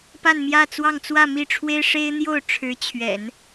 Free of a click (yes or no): yes